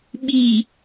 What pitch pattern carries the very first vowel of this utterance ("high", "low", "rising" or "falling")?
low